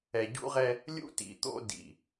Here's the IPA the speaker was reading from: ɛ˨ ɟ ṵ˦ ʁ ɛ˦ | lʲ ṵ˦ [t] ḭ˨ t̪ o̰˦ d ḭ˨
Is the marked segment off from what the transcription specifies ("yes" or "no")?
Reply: no